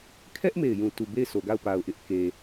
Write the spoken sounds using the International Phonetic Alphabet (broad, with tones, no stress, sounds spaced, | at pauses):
kʰ ɛ˦ ʔ m e˦˨ ɪ̯ j ũ˦˨ t u˦˨ b e˦˨ ɪ̯ s o˨ ɡ a˦˨ ʊ̯ p a˨ ʊ̯ ʔ ɪ˦ ʔ k e˨